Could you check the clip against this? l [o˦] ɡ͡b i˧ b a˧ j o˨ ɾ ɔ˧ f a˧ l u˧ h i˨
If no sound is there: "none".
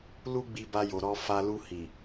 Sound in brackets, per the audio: u˦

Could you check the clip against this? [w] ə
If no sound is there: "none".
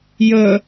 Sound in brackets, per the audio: j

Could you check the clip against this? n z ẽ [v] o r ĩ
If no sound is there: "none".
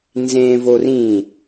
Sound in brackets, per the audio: v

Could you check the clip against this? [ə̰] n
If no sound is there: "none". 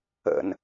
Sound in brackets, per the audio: ə̰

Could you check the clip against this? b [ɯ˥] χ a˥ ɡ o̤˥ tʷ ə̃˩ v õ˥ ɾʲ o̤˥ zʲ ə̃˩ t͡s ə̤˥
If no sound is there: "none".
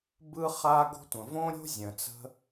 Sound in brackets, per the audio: ɯ˥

